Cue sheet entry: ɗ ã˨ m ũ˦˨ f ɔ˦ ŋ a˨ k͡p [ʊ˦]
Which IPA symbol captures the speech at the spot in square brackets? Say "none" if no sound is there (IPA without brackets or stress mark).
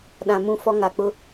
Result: ʊ˦